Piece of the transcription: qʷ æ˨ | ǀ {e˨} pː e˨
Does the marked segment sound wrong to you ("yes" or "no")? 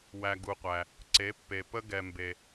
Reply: yes